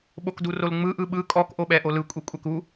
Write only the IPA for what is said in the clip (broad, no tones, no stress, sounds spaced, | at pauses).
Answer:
ɓ o k d u r o l ŋ͡m ɯ ʔ ɯ ɓ ɯ kʼ ɔ k ʔ o ɓ ɛ ʔ o l ɯ kʷʼ i kʷʼ ɛ k u